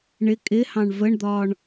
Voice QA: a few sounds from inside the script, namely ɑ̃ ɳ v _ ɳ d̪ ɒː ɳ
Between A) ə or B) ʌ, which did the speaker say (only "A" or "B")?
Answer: A